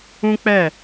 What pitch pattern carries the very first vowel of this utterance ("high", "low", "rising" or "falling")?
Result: high